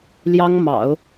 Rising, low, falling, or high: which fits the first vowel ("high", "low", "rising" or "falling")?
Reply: high